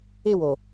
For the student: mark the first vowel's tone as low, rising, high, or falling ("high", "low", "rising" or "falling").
falling